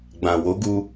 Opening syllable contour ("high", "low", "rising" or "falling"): low